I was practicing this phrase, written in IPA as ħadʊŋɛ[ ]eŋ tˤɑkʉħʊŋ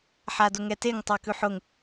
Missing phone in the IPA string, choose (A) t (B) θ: A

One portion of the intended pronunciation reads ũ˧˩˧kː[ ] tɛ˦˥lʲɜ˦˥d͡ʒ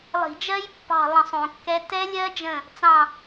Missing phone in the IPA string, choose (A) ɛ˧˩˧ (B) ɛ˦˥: B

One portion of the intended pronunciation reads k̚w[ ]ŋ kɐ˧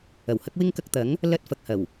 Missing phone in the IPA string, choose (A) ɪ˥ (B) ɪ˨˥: A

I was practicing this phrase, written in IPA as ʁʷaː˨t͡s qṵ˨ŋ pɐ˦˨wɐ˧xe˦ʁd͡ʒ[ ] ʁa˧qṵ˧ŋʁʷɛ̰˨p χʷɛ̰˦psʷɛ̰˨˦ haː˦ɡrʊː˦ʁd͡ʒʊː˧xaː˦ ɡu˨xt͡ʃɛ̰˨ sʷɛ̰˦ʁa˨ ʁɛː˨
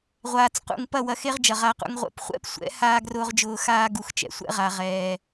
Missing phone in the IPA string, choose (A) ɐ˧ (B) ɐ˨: B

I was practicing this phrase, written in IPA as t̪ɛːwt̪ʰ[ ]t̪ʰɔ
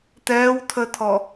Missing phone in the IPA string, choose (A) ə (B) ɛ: A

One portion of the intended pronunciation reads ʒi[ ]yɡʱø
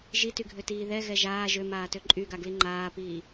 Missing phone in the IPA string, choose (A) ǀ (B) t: B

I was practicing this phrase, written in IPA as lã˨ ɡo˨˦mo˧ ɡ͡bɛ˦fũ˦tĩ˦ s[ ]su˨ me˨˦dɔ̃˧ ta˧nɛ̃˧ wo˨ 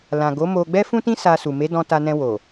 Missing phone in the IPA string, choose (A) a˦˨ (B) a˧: B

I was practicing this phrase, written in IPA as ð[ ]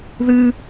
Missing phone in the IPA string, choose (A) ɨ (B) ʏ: A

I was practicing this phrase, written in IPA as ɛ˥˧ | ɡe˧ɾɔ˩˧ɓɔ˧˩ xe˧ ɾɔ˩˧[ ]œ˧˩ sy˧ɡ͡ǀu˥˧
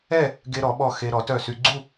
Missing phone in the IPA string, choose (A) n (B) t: B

